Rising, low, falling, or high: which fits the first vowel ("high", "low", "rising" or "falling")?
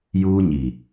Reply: high